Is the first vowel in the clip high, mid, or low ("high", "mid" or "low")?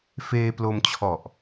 mid